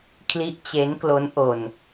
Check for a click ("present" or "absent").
absent